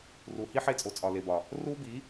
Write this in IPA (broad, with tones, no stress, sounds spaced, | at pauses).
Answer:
r u˨ h i˦ ħ e˧ t͡sʼ o˨ t͡sʼ ɒ˨ l e˨ b ɒ˨ | r u˦ b i˨˦